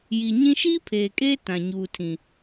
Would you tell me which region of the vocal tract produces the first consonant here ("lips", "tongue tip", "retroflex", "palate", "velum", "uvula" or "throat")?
palate